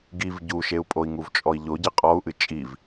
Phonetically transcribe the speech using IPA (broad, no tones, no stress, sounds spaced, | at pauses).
ɡ i v ɟ u ʃ e u̯ pʼ o i̯ ŋ u v t͡ʃʼ ɔ i̯ ʎ o ɟ ɨ qʼ ɔ u̯ ʔ ɨ t͡ʃʼ i v